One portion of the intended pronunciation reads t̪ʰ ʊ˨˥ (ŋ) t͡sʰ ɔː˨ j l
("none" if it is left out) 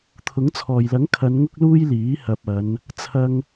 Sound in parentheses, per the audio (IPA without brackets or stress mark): ŋ